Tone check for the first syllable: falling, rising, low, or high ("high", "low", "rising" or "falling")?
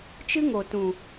high